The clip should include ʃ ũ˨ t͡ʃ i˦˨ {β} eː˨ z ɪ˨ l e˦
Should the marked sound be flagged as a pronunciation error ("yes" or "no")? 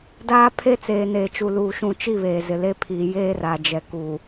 no